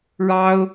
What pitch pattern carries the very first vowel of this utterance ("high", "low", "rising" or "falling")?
high